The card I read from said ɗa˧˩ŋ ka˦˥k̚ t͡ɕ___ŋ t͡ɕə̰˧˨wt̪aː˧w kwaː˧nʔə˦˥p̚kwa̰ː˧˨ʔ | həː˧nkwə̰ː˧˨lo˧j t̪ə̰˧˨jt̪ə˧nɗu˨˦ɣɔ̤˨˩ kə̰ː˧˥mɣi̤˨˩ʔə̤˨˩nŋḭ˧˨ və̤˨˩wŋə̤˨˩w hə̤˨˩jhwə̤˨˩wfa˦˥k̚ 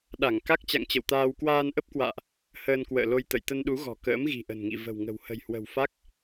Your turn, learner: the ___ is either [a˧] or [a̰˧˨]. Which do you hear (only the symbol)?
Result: a̰˧˨